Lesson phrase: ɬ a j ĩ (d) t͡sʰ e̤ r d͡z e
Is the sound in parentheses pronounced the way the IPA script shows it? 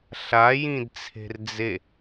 yes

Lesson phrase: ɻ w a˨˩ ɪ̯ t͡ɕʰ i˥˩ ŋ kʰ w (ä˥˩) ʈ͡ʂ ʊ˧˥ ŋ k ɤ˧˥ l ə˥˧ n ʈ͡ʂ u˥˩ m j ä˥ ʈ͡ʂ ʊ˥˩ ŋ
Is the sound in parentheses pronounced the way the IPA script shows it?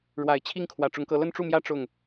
no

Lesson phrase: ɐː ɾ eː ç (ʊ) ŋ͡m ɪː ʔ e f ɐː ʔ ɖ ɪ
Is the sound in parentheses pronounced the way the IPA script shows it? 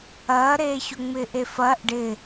yes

